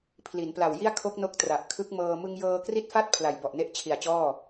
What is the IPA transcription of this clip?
pʰ l i˩˦ n p l a˨˩ w j i˥˩ a̯ kʰ o˦˥ k̚ n o˦˥ k̚ t r a˨˩ ʔ kʰ ɯ˦˥ k̚ m ɤː˧ m ɯ˧ ŋ j ɤː˧ k r i˥˩ t̚ f a˥˩ t̚ pʰ l a˨˩ j b ɔ˨˩ ʔ n e˦˥ ʔ t͡ɕʰ i˨˩ a̯ t͡ɕ ɔː˥˩

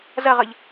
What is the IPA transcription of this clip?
z ɐ ʁ ʌ ʎ

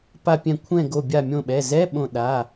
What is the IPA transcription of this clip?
p a˧˩ pʲ ɛ̃˧˩ kʷʰ ɛ̃˧˩ ɡ o˧˩ bʲ a˧˩ mʲ õ˧˩ ɓ ɛ˩˧˩ z ɛ˧˥˧ ɓ õ˧˩ ɗ a˩˧˩

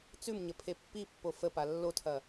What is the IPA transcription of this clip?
t͡s ʉ m ɲ ə pʰ e pː i pː o f ə p a lː o tʰ ɐ

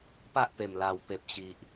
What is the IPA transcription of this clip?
p a˦ ʔ p e˨˩ m l a˨˩ w p e˨ p̚ ɕ i˨ ʔ

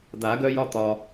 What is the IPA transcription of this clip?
d̪ a˨˩˦ ɡ œ˦ j ɒ˦ t̪ ɒ˩

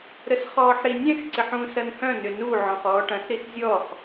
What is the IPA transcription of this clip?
ɾ ə s χ ɔː ħ ɾ i nʲ ɛ̃ x ǀ ɪ ħ ũ s ɐ n h œ̃ n ʏ n u ʕ ɔ̃ χ ɔː ʈ ɐ̃ s ɾ i s zʲ ɔ χ

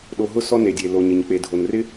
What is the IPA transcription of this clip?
ɗ o˨ ɦ ʊ˦ s ɔ˦ n e˩ dʲ e˩ l o˩ ɲ ɪ˩ ɲ k͡p e˩ dʱ o˩ n r ɪ˥

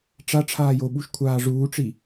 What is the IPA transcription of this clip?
ʈ͡ʂ a ʈ͡ʂʰ aː j o ɓ u ʃ kʷʰ aː ʐ uː ʈ͡ʂ i

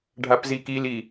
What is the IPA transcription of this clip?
ɖʱ a p z i k i l i

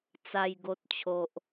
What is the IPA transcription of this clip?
t͡s a˨˩ j ɡ o˨ t̚ t͡ɕʰ o˨ ʔ

